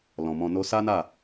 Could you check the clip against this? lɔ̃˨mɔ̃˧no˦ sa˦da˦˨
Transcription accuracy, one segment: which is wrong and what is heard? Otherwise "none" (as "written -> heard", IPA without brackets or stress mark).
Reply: d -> n